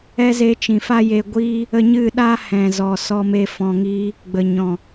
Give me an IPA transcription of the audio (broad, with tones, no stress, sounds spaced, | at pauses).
ɛ˦ z e˧ t͡ʃ ĩ˨ f a˦ j e˧ ɡʷ iː˦ | ə˧ ɲ ɨ˦˨ ɗ a˦ h ɛ̃˨ z ɔ˨ s ɔ˦ m e˦ f ɔ̃˧ ŋ iː˦ | ɡ͡b ə˨ ɲ ɔ̃˨